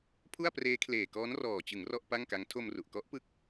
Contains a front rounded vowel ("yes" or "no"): no